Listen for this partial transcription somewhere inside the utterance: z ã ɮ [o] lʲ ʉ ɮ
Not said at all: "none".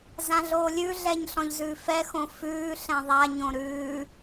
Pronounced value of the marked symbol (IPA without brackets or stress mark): oː